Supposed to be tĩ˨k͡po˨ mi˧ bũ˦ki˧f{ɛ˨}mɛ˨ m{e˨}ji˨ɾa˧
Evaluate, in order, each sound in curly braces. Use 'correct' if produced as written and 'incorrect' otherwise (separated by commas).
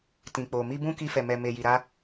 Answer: correct, correct